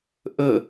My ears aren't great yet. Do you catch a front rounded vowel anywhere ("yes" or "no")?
no